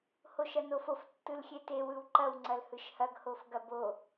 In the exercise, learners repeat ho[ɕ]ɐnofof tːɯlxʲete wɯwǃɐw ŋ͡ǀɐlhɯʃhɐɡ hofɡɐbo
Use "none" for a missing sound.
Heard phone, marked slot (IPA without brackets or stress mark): ʃ